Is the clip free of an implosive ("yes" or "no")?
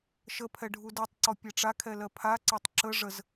yes